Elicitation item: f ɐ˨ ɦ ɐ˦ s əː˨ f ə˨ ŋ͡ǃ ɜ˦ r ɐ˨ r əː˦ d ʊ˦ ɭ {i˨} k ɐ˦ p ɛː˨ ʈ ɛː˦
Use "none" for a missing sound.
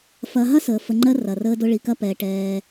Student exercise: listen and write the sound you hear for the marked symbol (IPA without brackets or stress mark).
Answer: i˨